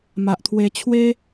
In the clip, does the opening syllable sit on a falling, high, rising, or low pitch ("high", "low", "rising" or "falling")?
low